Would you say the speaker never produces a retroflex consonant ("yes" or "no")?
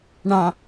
no